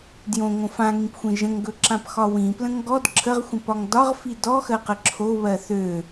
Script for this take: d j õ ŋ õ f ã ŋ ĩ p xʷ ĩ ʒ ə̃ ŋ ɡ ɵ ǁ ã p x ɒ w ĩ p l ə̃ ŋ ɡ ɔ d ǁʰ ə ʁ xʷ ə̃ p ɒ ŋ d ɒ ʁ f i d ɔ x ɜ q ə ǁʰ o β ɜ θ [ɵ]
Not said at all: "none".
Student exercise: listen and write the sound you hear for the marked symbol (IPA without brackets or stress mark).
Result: ø